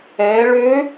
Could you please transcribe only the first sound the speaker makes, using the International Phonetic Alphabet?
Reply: ɛ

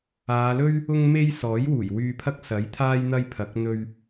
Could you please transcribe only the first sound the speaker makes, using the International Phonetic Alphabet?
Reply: aː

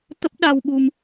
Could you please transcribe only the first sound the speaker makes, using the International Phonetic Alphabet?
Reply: t̪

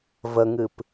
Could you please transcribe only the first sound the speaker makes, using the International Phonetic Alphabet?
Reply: v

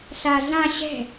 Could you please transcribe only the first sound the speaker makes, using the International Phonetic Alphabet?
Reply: ɬ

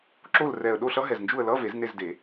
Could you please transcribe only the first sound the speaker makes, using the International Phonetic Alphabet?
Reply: ǁ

